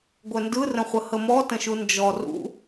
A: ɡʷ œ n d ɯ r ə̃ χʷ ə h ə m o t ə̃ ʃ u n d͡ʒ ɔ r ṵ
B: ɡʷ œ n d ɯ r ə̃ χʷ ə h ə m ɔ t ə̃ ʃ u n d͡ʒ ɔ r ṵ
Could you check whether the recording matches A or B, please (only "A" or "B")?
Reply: B